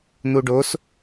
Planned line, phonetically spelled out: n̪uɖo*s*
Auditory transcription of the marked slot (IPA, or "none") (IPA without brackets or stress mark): s